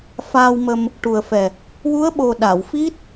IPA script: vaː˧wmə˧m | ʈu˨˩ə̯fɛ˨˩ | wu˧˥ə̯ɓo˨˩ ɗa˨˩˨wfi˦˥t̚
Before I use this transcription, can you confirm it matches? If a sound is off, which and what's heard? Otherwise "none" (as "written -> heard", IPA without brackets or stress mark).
v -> f